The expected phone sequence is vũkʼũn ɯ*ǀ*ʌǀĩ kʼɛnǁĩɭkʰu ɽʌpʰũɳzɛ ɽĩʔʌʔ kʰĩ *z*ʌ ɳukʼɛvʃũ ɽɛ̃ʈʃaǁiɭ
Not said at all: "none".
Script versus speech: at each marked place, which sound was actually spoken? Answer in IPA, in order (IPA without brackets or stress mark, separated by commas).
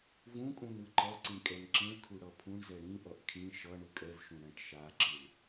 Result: ǃ, ʃ